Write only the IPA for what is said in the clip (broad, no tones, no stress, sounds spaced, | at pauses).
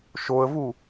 ʃ o ə̯ v u